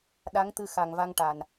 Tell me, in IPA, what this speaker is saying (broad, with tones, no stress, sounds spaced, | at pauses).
ɗ a˧˥ ŋ t̪ ɨ˧ x a˨˩ ŋ v a˧ ŋ ʈ a˨˩ n